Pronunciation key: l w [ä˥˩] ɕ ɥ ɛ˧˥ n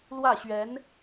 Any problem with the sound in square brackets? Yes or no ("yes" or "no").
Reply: no